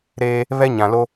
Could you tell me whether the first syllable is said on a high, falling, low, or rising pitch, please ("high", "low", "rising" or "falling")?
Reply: high